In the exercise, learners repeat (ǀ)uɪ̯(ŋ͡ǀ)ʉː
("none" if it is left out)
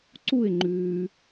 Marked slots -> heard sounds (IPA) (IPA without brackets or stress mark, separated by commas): ǀ, ŋ͡ǃ